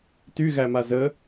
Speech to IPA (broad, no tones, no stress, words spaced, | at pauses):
tyɣæma zə